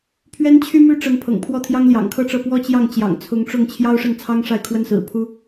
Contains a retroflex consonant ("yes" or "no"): yes